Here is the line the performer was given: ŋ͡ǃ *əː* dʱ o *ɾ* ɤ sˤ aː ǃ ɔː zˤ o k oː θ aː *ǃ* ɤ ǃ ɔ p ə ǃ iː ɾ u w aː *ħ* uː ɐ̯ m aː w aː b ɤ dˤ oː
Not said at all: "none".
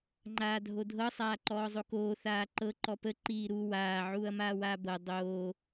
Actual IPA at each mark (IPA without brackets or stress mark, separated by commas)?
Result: aː, dʱ, ǃ, ʕ